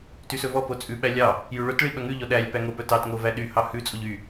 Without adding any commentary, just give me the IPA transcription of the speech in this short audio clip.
t y s ɵ v ɔ p o t͡sʼ ʉ ɓ æ lʲ ɑ | j ʉ ɭ ɵ t ɭ i ɓ œ ŋ ʉ ʎ ɔ ɗ æ lʲ p æ ŋ o p œ t ɑ t ŋ o v æ ɗ y h ɑ h ʉ t͡sʼ o ʎ y

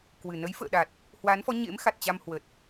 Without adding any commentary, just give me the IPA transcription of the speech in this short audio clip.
k w ɨ˨˩ n ə˨˦ j f ə̰ː˧˨ ɗ a˨˩ t̚ | h w a˨˦ n f ɔ˨˦ ɲ ḛ˧˥ m x a˨˩ t̚ t͡ɕ a˧ m h w ə˨˩ t̚

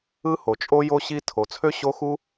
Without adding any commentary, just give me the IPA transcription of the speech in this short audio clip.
ɯ˥ h o˩ t͡ʃʼ o˥ j o˥ ɕ i˥ tʰ o˩ t͡sʰ ø˥ ɕ o˥ x u˥

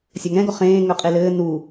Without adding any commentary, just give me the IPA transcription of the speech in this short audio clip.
sʲ ɒ ŋ ɛ̃ ɡ ɔ χ ẽː ŋ œ qʼ e l ɘː n u

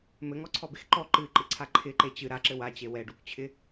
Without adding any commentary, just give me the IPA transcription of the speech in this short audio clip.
m ɘ ŋ ɔ ǀʰ ɔ b e x ǃ ɔ ǃ ɨ ǃ ɨ ǀʰ a ǃʰ ɪ ǃ e t͡ɕ ɨ ɾ a ǁ ɘ w a t͡ɕ e w ɛ ɖ u k t͡ɕʰ ɪ

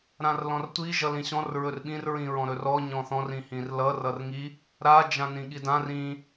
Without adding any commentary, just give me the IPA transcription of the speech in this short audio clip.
ɾ ã r l ɔ̃ r tʷ i ʒ ʌ l ĩ ɕ ɔ̃ r ɹ ɵ r ɓ ĩ r ɹ ĩ ɹ ɔ̃ ɾ ɵ r ɔ ɲ ɔ̃ θ ɔ̃ r ĩ h ĩ r l ʌ r ʌ r ŋ i | ɾ a d͡ʒ ã n ĩ ɠ i d ã r ĩ

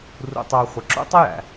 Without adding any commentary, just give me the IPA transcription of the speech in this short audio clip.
r ṵ˨ tˤ ə˞˨ χʷ ə˨ ǁ ṵ˦ tˤ ə˦ j æ̰˨

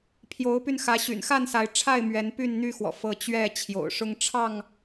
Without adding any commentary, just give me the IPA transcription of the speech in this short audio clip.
pʰ j o˨˦ ʊ̯ p y˧ n x ä˨˦ ɕ y̰˨˩ n x a˥˨ n s a˨˦ ɪ̯ ʈ͡ʂʰ a˥˨ ɪ̯ m ɥ ɛ˨˦ n p y˥˨ n n̪ y˥˨ x w ɔ̰˨˩ f ɤ˨˦ t͡ɕ ɥ ɛ˥˨ t͡ɕʰ j o̰˨˩ ʊ̯ ʂ ʊ˦ ŋ ʈ͡ʂʰ ɑ˥˨ ŋ

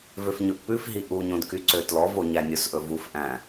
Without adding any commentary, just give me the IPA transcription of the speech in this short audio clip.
v ø f ɲ ɵ ʔ p ʉ f ɦ i ʔ u ɲ õ d k y ǀ ø t l ɔ v o ɲ æ nʲ o s ʔ ɵ v u f ʔ æ̃

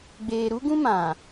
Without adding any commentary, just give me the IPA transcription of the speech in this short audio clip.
ɡ͡b eː˨ ɾ u˦ ɡ ũ˦ m ã˨

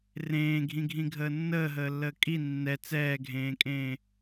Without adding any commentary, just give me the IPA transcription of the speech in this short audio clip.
r ẽː ɡʱ ĩ ɡʱ ĩ ɡʱ əː nː əː ɦ əː lː əː kʼ i nː ɛ t͡s ɛː ɡʱ ẽː kʼ ẽː

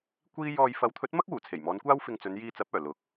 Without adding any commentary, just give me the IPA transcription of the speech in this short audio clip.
kʷ iː˥ j ɔː˧ j f ɐ˨˥ w t̪ʰ ɵ˨˥ t̚ m ɐ˥ k̚ w uː˨˩ t͡sʰ e˨˩ j m ɔː˨˧ n kʷ aː˥ w f ɪ˧ ŋ t͡s ɵ˨˧ n j iː˧ t͡s ɐ˨˥ p̚ œː˨˩ l ʊ˨˥ k̚

